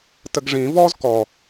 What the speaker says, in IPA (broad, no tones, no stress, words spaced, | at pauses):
təɡʐĩ vɔz kɔ